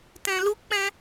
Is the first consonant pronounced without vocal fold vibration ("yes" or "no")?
yes